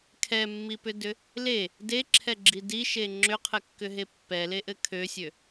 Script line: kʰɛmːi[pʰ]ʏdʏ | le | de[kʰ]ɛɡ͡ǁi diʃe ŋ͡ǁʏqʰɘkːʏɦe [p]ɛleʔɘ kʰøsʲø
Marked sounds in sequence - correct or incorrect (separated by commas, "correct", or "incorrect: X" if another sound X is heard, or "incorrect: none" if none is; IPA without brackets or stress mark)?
incorrect: p, incorrect: ǁʰ, incorrect: pː